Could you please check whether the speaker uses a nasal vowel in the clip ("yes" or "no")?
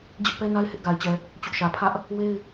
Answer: no